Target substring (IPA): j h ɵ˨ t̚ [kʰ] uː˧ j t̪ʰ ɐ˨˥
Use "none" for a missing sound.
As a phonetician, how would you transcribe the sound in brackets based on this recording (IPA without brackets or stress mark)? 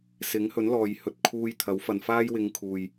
kʰ